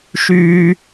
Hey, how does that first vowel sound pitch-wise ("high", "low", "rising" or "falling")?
high